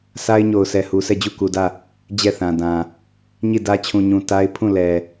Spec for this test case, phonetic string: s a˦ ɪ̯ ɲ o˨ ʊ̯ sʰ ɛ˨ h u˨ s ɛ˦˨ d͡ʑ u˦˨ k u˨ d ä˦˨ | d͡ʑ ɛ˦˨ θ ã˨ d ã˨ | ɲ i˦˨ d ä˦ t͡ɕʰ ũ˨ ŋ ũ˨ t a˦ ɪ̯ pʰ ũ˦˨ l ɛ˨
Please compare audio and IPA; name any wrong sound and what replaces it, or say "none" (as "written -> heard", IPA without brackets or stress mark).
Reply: ŋ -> ɲ